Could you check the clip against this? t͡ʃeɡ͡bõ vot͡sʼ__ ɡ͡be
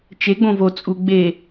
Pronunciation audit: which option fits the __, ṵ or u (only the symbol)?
u